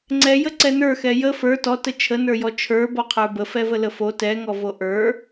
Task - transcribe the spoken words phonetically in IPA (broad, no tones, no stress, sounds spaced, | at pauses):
ŋ͡ǀ ɛ j ə ǀ ɛ n ə˞ x ɛ j ə f ə˞ t ɔ t ə t͡ʃʰ ə n ə˞ j ɔ t͡ʃʰ ə˞ b ɔ qʰ ə˞ b ə f ɛ v ə l ə f o t ɛ ŋ ɔ v o ʔ ə˞